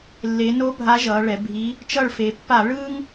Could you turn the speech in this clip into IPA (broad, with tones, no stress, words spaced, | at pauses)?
lːe˩˧no˧˥ bʱa˧˥ʒʌː˩˧ɭɛ˩˧bʱiː˧˥ | t͡ʃʌ˦˨ɭfe˩˧ pːa˧˩˧ɭɯː˥ŋ